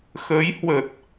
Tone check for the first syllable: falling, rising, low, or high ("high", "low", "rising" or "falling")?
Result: rising